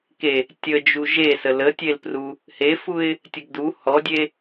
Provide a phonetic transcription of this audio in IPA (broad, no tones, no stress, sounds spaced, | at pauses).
k e | tʲ ə d͡ʒ u ʒ e s ə l ə tʲ e l p r u | h e f u ɪ̯ | tʲ ə ɡ d u h ɔ dʲ e